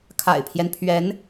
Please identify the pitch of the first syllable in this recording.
low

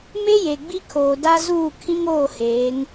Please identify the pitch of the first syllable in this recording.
high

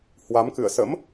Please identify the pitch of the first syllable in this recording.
rising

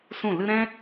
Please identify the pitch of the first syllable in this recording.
falling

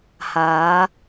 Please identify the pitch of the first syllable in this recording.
rising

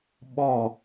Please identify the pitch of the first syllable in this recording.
falling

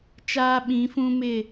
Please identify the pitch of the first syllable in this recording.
high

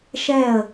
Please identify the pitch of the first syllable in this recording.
falling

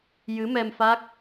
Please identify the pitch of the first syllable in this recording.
rising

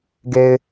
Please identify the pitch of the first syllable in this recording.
low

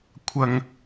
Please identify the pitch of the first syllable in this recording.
low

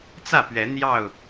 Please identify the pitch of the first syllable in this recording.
falling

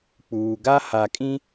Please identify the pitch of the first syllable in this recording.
low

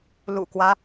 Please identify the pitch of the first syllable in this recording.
low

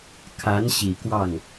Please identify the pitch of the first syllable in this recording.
rising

